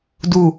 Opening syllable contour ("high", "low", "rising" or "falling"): low